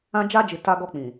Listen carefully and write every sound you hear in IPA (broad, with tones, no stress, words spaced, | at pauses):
ã˦ d͡ʒa˦d͡ʒi˨ ta˦ ɡɔ˦k͡pĩ˨